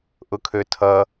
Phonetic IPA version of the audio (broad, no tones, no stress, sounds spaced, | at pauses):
ʔ ʊ kʰ ø tʰ ʌ